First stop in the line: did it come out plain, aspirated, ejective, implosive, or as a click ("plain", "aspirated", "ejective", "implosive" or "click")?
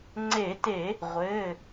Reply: click